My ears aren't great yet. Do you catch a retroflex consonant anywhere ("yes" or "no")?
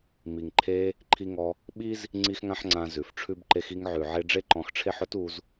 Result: yes